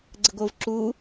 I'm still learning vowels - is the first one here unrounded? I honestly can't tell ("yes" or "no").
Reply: yes